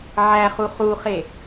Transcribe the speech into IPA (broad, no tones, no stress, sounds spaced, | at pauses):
ʕ æ χ u χ u χ e